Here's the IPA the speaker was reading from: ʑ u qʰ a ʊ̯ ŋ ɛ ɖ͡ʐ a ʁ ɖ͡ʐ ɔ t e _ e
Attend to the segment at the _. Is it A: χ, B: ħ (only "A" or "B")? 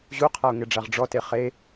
A